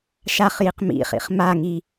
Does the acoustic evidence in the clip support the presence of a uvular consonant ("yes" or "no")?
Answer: yes